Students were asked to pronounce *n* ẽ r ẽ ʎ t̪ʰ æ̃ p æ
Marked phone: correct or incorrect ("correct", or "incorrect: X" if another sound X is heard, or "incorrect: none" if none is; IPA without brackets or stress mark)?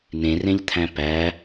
correct